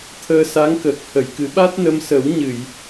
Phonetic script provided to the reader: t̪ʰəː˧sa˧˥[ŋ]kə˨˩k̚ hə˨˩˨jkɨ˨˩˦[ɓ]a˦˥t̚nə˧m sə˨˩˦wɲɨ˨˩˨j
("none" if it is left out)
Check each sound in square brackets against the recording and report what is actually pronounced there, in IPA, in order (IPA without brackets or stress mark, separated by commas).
ŋ, ɓ